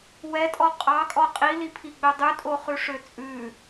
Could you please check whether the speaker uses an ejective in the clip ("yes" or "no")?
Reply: yes